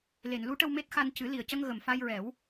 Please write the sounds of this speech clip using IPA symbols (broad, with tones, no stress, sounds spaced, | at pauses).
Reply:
l e˨˩˨ n l u˧˥ ʈ ə˧ w m e˦˥ t̚ x a˧ n c ɨ˨˩˦ l i˨˩ ə̯ c ə˧ ŋ ɣ ə˨˩ m f a˧ j ɹ ɛ˨˩˦ w